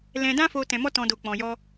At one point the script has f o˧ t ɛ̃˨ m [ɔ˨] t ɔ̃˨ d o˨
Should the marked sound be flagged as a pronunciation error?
yes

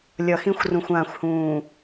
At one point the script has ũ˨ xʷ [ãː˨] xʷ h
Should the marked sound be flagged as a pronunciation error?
no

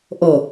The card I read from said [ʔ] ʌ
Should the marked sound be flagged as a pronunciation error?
no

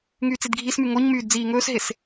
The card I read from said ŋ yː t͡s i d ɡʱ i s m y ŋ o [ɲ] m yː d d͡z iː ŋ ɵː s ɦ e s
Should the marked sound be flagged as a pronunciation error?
no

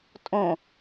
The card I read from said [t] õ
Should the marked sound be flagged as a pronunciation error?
yes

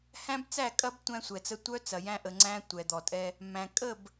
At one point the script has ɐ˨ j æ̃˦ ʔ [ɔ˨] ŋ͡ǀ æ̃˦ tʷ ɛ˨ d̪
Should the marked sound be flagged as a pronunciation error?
yes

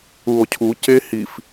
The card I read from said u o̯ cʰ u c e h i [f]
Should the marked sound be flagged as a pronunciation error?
no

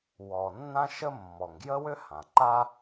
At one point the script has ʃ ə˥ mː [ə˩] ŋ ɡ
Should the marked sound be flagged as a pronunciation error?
yes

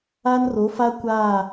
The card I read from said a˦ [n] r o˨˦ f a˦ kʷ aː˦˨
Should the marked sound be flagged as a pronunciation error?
no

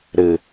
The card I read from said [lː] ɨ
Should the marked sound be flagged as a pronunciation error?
yes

